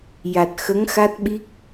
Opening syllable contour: low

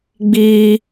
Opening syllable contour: high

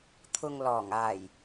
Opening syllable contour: low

